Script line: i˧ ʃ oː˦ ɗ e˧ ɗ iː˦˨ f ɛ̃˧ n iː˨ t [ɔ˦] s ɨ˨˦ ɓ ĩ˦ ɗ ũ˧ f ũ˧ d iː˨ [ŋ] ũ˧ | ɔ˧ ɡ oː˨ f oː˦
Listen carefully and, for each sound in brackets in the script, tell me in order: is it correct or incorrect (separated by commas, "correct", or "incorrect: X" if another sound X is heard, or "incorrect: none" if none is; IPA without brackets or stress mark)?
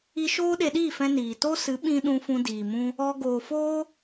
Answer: incorrect: o˦, incorrect: m